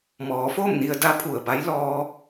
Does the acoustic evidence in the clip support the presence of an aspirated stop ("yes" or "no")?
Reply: yes